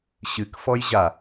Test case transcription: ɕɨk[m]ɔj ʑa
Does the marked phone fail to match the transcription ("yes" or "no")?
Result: yes